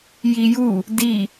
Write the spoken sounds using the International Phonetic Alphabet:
jiju | di

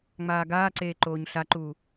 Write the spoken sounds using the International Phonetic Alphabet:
ŋ͡maːɡaːǀeː ǃoːɲɬaǃuː

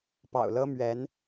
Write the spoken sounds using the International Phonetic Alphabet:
pɑ̰˨˩ʊ̯lɤ˥ mɥɛ˧˥n

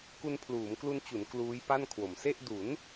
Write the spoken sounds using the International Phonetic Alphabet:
ku˧npʰluː˩˦mklu˧nt͡ɕu˩˦n kluː˦˥jpa˥˩nkʰwo˩˦m se˥˩ʔ du˩˦n

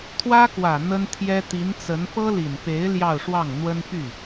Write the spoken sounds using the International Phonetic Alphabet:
t̪ʰwä˥kwä˨˩ n̪ə˥nt̪ʰjɛ˥ t̪i˧˥nt͡sə˧˥n pɤ˥li˨˩npe˧˥ɪ̯ ljɑ˥˧ʊ̯ʂwɑ˥˩ŋ n̪wə˥n py˥˩

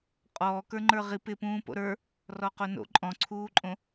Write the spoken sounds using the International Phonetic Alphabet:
qʼɔː kə˞ŋ͡ǃə˞ʁip ɪpũː po̰ɾə˞ | rɔqono̰ ǃʼɔ̃ǀʰuːǃʼõ

